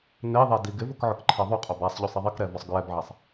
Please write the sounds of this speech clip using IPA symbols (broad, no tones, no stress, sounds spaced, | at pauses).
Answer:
n e ðˤ ɛ d i ɡ ɪ v ʊ k ʕ ʊ k ǃʰ e ðˤ u qʼ o b a sˤ ʎ u sˤ i ðˤ i k ɾ ɛ v ɔ sˤ ɡ ɹ ɛ b ʕ a sˤ